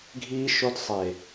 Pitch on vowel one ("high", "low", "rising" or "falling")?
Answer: high